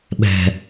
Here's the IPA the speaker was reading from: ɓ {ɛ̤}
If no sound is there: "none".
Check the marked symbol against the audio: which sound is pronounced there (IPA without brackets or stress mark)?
ɛ̤